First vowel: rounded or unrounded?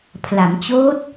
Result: unrounded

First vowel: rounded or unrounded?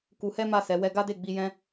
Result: rounded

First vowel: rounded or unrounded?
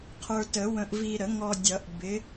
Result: unrounded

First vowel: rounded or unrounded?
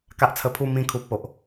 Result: unrounded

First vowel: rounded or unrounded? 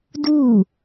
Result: rounded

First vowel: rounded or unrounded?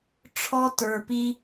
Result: rounded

